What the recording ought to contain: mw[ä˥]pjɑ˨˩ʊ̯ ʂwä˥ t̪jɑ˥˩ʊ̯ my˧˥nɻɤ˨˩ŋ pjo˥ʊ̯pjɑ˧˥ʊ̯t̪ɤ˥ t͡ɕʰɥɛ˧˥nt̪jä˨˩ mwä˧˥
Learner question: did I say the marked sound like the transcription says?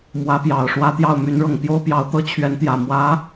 no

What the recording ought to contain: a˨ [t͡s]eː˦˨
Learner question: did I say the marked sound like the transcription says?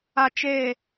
no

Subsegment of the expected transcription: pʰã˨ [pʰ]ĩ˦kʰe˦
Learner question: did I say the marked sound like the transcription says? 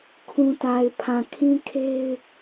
no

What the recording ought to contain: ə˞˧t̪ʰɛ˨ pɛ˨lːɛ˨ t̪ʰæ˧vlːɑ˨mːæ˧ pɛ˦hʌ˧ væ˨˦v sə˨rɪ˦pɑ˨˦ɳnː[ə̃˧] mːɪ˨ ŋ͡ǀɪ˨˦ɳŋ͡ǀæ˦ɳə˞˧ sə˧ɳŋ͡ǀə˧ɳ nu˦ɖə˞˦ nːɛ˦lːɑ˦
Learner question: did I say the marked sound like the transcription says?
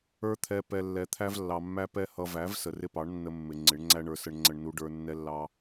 no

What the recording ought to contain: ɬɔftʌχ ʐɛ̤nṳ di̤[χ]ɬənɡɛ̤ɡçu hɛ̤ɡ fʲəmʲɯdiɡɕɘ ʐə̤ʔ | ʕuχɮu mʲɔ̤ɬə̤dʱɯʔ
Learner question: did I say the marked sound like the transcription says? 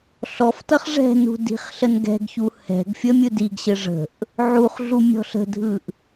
yes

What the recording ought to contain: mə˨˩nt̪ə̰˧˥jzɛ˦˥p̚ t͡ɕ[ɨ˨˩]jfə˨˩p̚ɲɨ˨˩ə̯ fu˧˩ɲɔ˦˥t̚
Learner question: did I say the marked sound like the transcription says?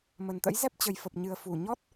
no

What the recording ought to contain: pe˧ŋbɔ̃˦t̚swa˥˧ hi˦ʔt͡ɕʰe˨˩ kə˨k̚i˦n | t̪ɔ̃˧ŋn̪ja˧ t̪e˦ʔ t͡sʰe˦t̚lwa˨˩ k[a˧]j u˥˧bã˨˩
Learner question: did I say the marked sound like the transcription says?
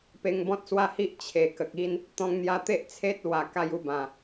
yes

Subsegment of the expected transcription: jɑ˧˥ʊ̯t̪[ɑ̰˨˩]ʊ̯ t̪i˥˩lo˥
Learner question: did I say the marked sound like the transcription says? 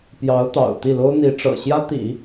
yes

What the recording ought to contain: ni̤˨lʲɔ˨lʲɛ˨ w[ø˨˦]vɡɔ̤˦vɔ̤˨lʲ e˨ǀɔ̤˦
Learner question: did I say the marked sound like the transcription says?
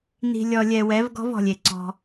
no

